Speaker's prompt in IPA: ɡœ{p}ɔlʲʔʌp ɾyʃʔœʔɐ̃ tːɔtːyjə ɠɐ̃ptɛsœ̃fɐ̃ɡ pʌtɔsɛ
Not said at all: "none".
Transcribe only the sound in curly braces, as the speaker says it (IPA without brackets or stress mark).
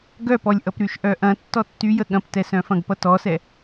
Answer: p